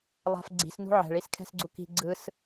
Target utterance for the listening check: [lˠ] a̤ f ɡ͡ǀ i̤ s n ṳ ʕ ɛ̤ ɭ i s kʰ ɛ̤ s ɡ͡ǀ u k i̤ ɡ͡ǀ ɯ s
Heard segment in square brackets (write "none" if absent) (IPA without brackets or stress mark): lˠ